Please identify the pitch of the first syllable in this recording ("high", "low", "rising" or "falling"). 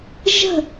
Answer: falling